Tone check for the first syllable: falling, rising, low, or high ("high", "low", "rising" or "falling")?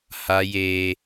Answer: high